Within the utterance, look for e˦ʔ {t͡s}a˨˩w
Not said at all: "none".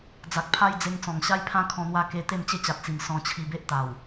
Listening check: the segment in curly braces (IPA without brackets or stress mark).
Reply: t̪